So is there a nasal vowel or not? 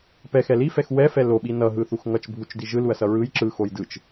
no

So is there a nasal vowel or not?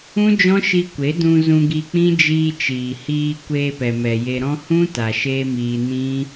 yes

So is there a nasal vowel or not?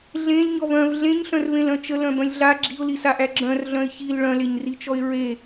yes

